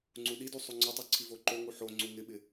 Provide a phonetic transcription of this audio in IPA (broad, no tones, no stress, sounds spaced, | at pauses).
ŋ͡ǀ u ɗ i d u sˤ u ŋ͡ǀ ʊ tˤ u ǀʰ i v o ǃ o ŋ u ħ o ŋ͡ǀ u ŋ ɪ ɓ ɪ